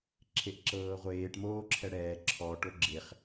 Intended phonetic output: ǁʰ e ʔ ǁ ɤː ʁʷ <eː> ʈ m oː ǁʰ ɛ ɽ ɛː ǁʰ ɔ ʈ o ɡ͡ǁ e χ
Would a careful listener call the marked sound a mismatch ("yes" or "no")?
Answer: no